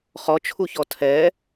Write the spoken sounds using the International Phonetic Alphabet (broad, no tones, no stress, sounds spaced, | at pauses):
χ ɔ t͡ʃʰ u ç ɔ tʰ ɛ